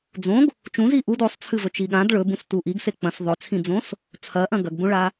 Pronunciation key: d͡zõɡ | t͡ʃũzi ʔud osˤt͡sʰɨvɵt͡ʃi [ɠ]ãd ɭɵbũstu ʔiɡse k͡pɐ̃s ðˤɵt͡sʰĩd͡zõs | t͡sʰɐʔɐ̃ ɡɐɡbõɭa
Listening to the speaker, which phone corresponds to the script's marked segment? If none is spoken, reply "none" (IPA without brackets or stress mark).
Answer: ɠ